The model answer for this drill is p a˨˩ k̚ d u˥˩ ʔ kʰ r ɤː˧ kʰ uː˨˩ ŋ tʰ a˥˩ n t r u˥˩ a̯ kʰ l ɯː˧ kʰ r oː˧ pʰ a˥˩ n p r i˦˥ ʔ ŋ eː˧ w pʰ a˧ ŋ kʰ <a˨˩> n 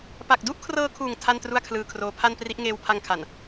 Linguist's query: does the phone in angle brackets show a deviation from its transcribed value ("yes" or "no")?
no